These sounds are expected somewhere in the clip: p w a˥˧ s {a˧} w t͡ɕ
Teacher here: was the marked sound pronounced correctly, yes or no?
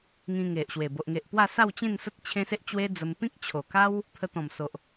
no